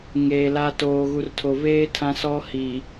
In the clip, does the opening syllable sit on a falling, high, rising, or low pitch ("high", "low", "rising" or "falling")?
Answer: low